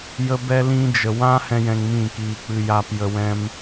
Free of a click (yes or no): yes